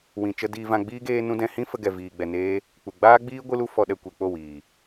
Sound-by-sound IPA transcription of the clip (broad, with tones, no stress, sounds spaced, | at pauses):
w ĩ˨ t͡ʃ ə˧ d iː˧ v ã˧ ɡ͡b iː˦ ɡ eː˦ n ũ˦ d ɛ̃˧ h ĩ˦ f ə˦ ɡ ɛ˧ v iː˧ ɡ͡b ɛ˧ n eː˦ | k͡p u˨ ɡ͡b aː˦ ɡ͡b iː˦ ɡʷ ɨ˦ l u˦ f ɔ˧ ɗ ɛ˧ kʷ e˨ k͡p o˦˨ w iː˨